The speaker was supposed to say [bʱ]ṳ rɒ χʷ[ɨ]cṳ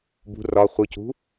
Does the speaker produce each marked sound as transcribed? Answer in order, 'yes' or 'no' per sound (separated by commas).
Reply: no, yes